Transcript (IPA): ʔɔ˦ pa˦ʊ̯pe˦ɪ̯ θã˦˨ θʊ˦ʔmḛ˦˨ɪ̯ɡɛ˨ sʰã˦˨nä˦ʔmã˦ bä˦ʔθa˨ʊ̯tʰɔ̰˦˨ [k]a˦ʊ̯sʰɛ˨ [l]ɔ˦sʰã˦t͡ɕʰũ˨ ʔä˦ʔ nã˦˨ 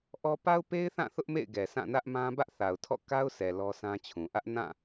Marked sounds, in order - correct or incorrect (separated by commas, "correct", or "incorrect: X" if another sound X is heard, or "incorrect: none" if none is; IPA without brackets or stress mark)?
correct, correct